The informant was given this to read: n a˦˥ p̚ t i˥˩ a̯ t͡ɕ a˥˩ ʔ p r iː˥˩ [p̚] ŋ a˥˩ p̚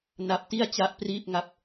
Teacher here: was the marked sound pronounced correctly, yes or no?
yes